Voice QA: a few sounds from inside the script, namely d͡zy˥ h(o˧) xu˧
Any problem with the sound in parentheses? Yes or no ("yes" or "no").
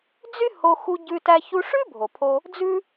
no